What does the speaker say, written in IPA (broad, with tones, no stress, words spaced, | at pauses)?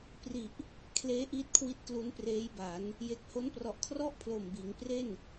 pri˨˩ʔ | kʰleː˦˥ʔiː˦˥t̚kʰwi˦˥t̚ klu˦˥npreː˦˥jba˩˦n | je˨˩k̚ho˦˥nprɔ˨˩ʔkʰrɔ˥˩ʔ pʰloː˨˩mbiː˩˦ŋpre˥˩n